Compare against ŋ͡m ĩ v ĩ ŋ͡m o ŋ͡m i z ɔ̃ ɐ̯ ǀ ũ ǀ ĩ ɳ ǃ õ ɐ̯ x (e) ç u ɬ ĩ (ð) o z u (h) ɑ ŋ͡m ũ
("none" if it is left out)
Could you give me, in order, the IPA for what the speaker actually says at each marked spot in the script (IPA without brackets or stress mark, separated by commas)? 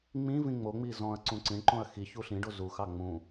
i, ɖ, x